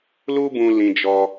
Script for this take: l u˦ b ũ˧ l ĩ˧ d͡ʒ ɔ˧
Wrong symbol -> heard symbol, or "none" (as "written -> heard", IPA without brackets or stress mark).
none